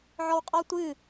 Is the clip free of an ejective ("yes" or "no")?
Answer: no